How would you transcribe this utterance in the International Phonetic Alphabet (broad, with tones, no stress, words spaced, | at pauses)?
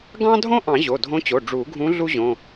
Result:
ɡɑ̃˥dʱõ˥ ʔɑ̃˨˩˦ ʑo˩˧˩dʱõ˧˥t͡ɕo˩˧˩ ɖ͡ʐu˨˩˦ɡʱũ˧˥ ɮu˥ʑõ˩˧˩